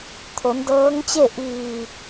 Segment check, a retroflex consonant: absent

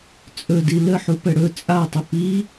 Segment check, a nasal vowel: absent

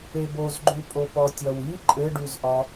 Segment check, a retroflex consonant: present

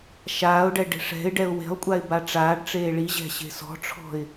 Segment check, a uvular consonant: absent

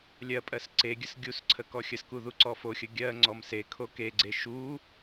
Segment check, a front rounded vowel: absent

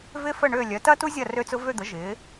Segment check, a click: absent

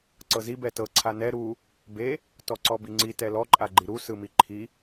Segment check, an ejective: present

